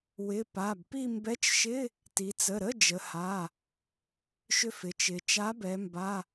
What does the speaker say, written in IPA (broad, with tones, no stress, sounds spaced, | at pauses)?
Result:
w ɪ˩˧˩ p a˩˧˩ b p i˥˧ m b ɛ˧˥˧ t͡ʃ ʃ ɪ˧˥˧ | t i˩˧ t͡s ə˩˧˩ ɾ ə˧˥˧ d͡ʒ ə˩˧ h a˩˧˩ | ʃ ʏ˥˧ f ɪ˩˧ t͡ʃ ɪ˩˧ t͡ʃ a˨˥ b ɛ˩˧ m b a˧˥˧